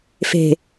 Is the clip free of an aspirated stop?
yes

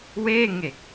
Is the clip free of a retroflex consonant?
yes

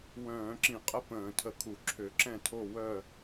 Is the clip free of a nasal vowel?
no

